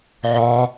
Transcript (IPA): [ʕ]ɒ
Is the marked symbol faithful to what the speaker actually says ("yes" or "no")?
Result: yes